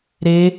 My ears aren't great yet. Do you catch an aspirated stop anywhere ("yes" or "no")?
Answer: no